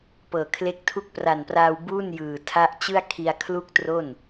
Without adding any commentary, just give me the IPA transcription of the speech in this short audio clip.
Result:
p ɤː˨˩ kʰ l e˦˥ k̚ tʰ u˥˩ k̚ p r a˨˩ n p r aː˧ w b u˥˩ n j ɯː˨˩ tʰ a˦˥ ʔ t͡ɕ ɯ˥˩ a̯ kʰ i˧ a̯ kʰ l u˥˩ k̚ t r o˥˩ n

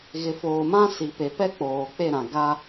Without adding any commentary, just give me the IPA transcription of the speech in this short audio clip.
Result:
ɣ ɪ˨ f oː˨ m ã˦ s i˨ p e˨ p ɛ˦ k͡p oː˨ k͡p e˦˨ ɾ ã˨ ɡ a˦

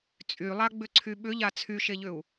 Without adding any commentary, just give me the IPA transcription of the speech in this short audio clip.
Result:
t͡sʼ y lˠ a ɡ͡b ʏ ǀʰ y ɓ ʏ ʎ a t͡sʰ y ʃ e ʎ ʏ u̯

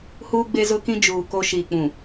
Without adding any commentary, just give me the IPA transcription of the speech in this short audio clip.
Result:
h uː˦ ɡ͡b e˦ z ʊ˦ k ĩ˦ d͡ʒ uː˨ k o˦ ʃ iː˨ k͡p ũ˨

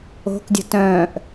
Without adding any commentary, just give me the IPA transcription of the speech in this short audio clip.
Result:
o̤ k dʲ ə̤ t œ̃ː ʔ

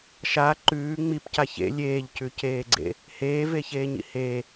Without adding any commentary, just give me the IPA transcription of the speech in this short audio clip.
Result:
ʃ a ǃ ʉː ŋ͡m i p c a ç ḛ lʲ eː ʎ c ʉ c eː ɡ͡ǀ ḛ | h eː v e ç eː ɲ ḭ h e

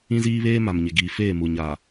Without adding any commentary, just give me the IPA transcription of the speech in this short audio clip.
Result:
ĩ˦ z iː˦ β eː˦ m a˨ m ɲ ɪ˨ ɡ iː˨ f eː˦˨ m u˨ ɲ a˨

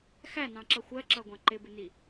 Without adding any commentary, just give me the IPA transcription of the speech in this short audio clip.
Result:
x æ n ɑ̃ ǁ ʌ xʷ ɜ ǁ ʌ ɡʷ ɑ̃ ǃ ɪ b ɪ n i

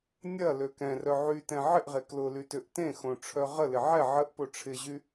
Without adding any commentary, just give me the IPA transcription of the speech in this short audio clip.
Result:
nʲ ɐ l ø k ɛ̃ r œ ʕ y t ɛ̃ ʕ ɪ ʔ ʁ e k l ʊ l y t ʏ ʔ t ẽ x õ ʈ͡ʂʰ œ ʁ ə l ɪ ʕ ɛ ʕ ə ʔ p o ʈ͡ʂʰ ɪ ʑ y

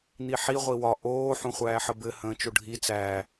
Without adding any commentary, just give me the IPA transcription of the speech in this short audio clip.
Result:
n̪ i ħ i ʁʷ i w ɒ ʔ oː ħ ũ χʷ æː ħ ə b ɘ h ə̃ː t͡ʃ o ɖʱ i t͡s æː

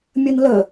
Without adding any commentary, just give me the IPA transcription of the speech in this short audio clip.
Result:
mʲ ʌ n l ʌ

